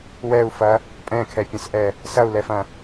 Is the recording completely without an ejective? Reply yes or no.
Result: no